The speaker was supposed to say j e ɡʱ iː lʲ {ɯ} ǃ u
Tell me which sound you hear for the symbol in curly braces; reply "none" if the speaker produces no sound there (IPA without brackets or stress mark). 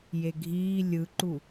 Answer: ɯ